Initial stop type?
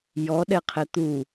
implosive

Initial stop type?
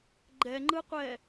click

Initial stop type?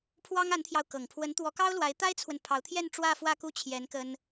aspirated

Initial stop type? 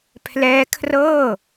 aspirated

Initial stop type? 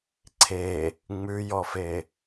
click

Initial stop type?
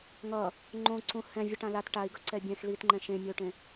click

